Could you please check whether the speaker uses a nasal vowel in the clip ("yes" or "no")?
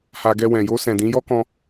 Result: yes